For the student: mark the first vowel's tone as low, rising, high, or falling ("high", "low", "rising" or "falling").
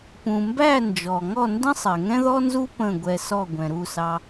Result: low